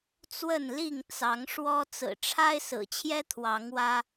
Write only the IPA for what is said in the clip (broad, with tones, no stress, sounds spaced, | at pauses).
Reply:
t͡s w ə˥˨ n l i˥˨ ŋ t͡s ɑ˨˦ ŋ ʂ w ɔ˦ t͡s ɹ̩˨˩ ʈ͡ʂʰ a˦ ɪ̯ s ɹ̩˨˩ t͡ɕʰ j ɛ˦ t̪ʰ w ɑ˨˦ ŋ w ä˦